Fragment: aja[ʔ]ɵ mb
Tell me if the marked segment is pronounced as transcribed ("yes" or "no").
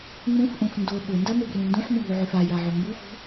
no